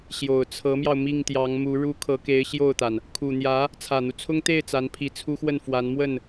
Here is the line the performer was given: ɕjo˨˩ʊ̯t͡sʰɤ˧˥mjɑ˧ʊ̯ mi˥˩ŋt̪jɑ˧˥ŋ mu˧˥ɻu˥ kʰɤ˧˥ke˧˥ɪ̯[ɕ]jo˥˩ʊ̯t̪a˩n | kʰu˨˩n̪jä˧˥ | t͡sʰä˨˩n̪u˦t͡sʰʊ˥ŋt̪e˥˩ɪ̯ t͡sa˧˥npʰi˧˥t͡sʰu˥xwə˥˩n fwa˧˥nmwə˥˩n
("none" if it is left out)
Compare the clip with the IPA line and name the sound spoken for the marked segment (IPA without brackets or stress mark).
ɕ